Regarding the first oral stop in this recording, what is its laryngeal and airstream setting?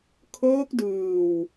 aspirated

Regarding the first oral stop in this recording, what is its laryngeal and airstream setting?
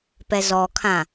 plain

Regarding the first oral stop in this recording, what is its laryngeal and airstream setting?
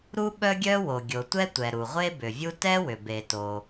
implosive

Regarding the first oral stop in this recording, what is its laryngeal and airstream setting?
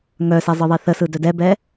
plain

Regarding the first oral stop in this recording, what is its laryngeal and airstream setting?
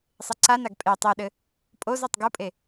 click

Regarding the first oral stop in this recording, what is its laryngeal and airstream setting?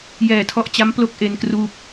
aspirated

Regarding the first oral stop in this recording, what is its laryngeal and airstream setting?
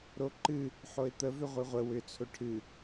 click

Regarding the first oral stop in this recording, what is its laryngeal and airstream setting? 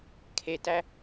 aspirated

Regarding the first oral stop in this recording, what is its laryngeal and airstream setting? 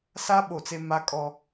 implosive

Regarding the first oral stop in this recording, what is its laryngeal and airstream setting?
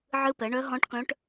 plain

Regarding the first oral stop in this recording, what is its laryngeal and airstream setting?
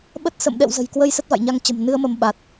implosive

